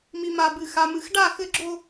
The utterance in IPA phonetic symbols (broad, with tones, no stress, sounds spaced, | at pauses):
m i˨ m a˨ b ɨ˨ x a˨ m ɨ˨ x ɖ a˦˨ x ɘ˦ ɡ͡ǁ o˦